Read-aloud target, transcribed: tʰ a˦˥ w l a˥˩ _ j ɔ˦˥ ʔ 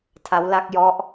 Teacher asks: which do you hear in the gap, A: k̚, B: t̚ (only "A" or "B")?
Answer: A